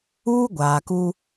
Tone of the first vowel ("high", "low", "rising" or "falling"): high